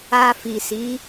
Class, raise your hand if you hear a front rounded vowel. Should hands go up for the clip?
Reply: no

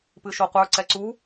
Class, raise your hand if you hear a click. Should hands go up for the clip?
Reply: yes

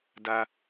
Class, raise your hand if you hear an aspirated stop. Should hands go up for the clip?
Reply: no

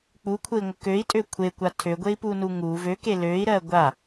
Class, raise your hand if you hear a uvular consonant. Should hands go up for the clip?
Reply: no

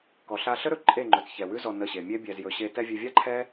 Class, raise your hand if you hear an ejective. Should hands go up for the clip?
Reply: yes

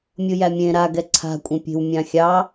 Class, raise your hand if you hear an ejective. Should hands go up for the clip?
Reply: yes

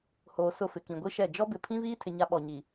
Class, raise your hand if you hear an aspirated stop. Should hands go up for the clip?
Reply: yes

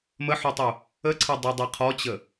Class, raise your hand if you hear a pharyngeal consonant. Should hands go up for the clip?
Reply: yes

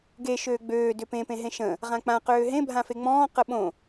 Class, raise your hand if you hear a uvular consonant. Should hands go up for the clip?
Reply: yes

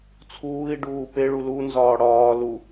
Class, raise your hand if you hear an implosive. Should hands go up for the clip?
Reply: no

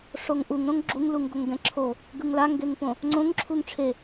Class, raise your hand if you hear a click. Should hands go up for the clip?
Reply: yes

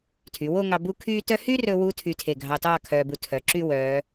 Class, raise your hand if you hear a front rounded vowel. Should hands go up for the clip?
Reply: yes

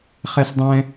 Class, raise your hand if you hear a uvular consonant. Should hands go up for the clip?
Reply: yes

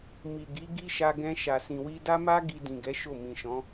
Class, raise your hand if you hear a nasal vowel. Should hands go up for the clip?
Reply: yes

